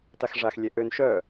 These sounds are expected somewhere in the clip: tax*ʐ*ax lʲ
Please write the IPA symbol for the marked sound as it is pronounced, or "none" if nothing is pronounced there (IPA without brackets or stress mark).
ʐ